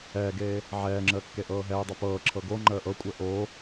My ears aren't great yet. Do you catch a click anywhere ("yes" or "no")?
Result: yes